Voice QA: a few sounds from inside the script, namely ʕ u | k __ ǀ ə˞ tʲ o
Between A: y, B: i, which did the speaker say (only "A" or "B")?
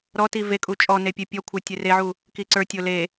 B